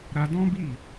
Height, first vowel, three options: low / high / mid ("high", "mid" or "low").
low